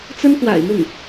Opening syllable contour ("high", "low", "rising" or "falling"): high